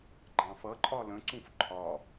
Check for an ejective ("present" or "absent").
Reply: present